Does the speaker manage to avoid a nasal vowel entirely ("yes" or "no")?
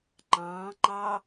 no